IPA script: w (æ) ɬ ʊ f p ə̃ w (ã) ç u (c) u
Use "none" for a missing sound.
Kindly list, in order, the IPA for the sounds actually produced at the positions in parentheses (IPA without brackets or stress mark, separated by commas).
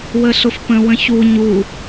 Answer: ə, ə̃, ɲ